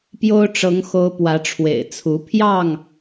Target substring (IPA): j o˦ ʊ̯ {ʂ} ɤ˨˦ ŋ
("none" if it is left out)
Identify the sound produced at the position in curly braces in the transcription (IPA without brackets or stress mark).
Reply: ʈ͡ʂ